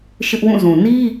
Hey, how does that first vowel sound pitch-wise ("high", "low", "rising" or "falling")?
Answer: high